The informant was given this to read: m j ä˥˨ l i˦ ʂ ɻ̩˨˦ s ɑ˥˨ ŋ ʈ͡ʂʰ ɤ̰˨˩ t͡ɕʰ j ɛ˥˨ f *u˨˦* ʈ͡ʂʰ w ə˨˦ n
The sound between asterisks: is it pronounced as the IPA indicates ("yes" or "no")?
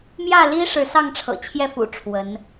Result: no